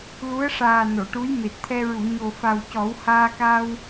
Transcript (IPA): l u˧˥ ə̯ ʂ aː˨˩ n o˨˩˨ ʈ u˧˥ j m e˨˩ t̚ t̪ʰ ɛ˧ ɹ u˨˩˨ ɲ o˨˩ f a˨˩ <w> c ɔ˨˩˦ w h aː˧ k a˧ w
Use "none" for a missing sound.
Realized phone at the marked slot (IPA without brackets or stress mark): w